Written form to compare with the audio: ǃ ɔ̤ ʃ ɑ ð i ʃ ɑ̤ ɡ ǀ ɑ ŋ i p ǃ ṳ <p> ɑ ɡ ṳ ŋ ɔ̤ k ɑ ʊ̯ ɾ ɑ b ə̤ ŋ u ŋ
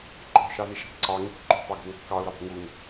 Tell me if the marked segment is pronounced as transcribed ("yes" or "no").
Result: yes